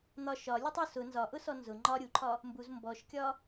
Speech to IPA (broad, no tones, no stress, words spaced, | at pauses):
n̪ɒ ʃɒlʲutˤ ʊ sʊ nzɒʔʊsɔ nzʊ ŋ͡ǃɒ ɾʲuǃʰɒ | mbuz mbɔʃkʲɒ